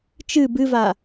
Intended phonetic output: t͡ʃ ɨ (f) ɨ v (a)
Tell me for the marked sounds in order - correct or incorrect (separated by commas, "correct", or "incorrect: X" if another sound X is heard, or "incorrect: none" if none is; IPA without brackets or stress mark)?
incorrect: b, correct